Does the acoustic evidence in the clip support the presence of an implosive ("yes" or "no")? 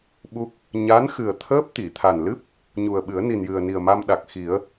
yes